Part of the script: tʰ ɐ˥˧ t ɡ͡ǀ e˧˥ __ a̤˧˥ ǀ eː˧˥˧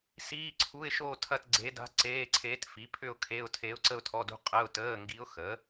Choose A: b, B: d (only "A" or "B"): B